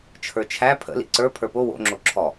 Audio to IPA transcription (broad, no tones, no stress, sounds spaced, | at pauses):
t͡ʃʰ ə˞ t͡ʃʰ æ pʰ ə̰ l ḭ ǀ ə˞ pʰ ə˞ p o w o̰ ŋ͡ǁ o ǁʰ ɔ